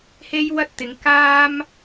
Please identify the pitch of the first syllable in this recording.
high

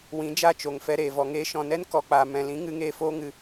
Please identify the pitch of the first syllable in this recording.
rising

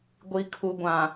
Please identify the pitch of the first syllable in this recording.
low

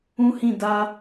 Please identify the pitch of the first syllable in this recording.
high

